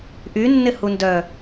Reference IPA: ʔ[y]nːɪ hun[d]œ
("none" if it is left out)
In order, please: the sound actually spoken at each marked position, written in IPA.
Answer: y, d

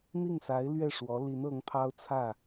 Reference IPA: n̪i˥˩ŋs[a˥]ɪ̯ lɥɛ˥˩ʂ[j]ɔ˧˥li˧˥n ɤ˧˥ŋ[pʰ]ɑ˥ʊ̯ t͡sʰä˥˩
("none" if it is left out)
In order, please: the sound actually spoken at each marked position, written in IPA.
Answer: a˧˥, w, pʰ

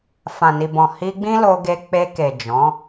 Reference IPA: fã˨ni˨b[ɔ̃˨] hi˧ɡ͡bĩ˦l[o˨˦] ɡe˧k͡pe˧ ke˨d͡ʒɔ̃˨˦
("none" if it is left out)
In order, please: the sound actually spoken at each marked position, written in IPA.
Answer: ɔ̃˨, o˧

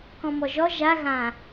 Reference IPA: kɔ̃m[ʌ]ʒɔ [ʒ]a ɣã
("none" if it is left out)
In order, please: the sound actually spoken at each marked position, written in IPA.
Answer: ɔ, ʒ

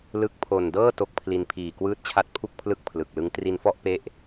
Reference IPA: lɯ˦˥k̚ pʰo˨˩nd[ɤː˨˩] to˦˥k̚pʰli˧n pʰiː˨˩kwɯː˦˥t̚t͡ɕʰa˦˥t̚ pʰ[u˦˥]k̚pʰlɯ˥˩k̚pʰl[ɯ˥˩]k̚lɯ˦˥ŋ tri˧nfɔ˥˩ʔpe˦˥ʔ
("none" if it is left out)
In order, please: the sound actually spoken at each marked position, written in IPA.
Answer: ɤː˥˩, u˥˩, ɯ˨˩

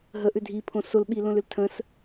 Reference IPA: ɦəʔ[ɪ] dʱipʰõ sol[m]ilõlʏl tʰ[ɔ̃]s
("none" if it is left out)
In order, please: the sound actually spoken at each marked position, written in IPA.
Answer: ʏ, ɓ, ə̃

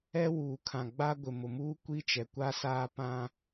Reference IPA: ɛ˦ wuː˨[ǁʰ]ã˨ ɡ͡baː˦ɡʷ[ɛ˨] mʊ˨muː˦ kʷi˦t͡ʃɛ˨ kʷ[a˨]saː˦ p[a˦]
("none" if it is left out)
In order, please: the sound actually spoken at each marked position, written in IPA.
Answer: kʰ, ɪ˨, a˦, ã˦

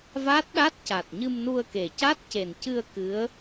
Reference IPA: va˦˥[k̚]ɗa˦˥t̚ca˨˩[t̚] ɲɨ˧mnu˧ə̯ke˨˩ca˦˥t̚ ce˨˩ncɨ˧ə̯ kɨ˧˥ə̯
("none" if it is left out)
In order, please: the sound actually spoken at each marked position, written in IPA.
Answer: t̚, t̚

